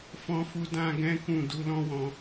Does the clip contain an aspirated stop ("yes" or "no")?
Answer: no